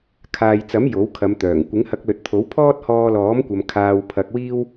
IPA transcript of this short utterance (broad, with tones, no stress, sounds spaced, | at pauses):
kʰ aː˨ j t͡s ɐ˨˥ m j o˨˥ w kʰ ɐ˨˧ m t̪ œː˨˩ ŋ kʷ ɪ˨˥ ŋ h ɐ˧ k̚ l ɵ˨˥ t̚ t̪ʰ o˨˥ w pʰ ɔː˥ t̚ h ɔː˧ l ɔː˨˥ m kʷ ɐ˨ m kʰ aː˧ w pʰ ɐ˧ k̚ w iː˥ w